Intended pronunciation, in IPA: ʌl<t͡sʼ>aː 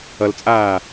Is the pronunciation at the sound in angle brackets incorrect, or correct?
correct